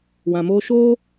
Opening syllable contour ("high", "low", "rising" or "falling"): low